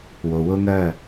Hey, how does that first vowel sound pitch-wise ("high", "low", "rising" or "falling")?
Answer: low